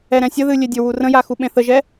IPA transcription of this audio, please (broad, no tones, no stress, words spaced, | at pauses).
ɛɾɛ̃sʲəðɨ lʲedʲɵwu rə̃ja xuɓẽθəʒɛ